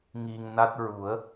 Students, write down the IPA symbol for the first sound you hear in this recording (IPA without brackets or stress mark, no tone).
ŋ